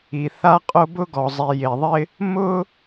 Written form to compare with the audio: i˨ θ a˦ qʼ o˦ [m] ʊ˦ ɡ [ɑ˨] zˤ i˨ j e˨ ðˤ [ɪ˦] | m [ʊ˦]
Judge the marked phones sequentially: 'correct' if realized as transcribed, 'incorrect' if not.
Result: incorrect, incorrect, correct, correct

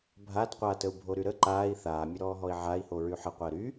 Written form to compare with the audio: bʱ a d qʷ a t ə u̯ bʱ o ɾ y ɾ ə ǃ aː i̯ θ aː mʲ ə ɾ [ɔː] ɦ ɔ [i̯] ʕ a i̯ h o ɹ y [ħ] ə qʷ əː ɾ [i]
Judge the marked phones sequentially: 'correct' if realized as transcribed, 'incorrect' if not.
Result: correct, correct, correct, incorrect

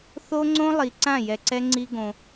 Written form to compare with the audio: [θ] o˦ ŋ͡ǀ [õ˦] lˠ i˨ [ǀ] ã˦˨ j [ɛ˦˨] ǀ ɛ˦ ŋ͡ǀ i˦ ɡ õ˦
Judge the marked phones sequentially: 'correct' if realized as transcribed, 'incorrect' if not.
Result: correct, correct, correct, incorrect

